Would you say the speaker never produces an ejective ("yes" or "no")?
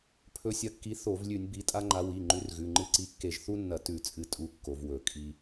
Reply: no